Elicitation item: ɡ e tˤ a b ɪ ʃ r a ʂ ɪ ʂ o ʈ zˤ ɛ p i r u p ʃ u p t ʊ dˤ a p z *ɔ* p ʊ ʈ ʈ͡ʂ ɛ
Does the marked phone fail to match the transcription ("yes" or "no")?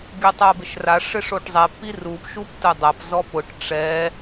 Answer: no